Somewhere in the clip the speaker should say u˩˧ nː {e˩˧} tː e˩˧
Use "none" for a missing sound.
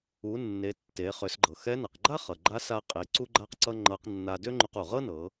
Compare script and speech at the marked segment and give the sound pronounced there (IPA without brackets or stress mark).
e˩˧